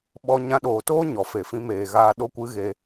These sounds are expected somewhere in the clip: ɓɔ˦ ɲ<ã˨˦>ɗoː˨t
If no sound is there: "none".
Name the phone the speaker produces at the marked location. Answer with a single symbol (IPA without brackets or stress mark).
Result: ã˧